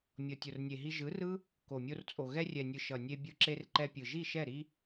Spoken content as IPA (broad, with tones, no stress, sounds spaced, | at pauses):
mʲ ʌ˨ tʲ o˨ r nʲ e˨ ɦ i˧ ʒ ɯ˨˦ r ɯ˦ | k o˨ mʲ o˧ r t͡sʼ o˨ ɣ ɛ˧ rʲ ɛ˨ nʲ ɯ˨ ʃ ʌ˨ nʲ e˧ bʲ ɯ˧ ǁ e˧ r ǃ ɛ˧ pʲ ɯ˨ ʒ i˦˨ ʃ ɛ˦˨ ɾ i˦